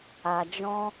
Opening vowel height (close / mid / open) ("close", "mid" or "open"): open